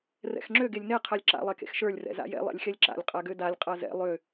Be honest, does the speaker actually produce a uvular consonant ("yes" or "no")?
yes